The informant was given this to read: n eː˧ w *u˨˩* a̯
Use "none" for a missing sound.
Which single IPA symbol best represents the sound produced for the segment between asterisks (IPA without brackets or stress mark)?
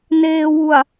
u˨˩